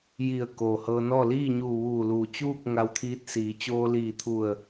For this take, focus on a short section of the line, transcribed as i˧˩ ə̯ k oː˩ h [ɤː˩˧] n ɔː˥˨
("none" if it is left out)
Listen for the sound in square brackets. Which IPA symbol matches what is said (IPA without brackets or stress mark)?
ɤː˧